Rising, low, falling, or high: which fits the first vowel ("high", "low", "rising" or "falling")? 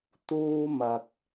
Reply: high